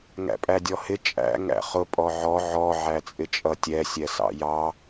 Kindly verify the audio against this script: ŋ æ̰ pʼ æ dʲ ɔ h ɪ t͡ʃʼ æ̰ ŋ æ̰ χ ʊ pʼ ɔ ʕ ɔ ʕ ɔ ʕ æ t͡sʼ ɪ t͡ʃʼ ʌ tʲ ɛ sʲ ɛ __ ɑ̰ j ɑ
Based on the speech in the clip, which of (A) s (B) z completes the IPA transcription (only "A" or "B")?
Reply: A